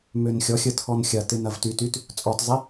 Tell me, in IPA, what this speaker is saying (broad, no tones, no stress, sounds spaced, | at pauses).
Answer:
m ø n xʲ ɔ xʲ ə tʰ ɔ n xʲ ɐ t ɪ n ɐ v t y t y t | t͡sʼ ɔ t zˤ i